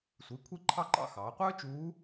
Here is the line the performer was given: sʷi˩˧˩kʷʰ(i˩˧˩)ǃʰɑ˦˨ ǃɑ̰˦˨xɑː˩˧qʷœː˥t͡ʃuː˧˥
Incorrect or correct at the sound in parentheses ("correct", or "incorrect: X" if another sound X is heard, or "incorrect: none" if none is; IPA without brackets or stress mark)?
incorrect: i˦˨